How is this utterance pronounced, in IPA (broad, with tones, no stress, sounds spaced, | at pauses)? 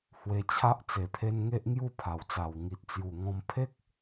h w e˧ t͡ɕʰ a˦ ʔ t͡s e˨˩ pʰ e˧ n ŋ e˦ ʔ ŋ j u˥˧ pʰ a˨˩ w t͡s a˨˩ w ŋ i˨ t̚ t͡s j u˨˩ ŋ ɔ̃˧ m pʰ e˦ k̚